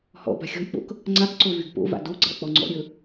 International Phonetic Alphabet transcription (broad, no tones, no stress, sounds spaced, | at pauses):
h ɔ̰ b a̤ xʲ ɔ̤ j k͡p o̰ k | ŋ͡ǀ a k ǀ o v y ɡ p o̰ v a̰ d o ɡ͡ǀ a̰ k͡p ɔ ŋ͡ǀ ɔ̰ ɾʲ ɵ